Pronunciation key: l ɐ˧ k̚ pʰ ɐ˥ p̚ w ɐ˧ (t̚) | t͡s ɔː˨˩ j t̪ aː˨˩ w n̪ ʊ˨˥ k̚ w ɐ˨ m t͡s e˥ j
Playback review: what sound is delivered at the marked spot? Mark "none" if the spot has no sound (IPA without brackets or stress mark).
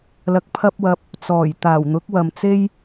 p̚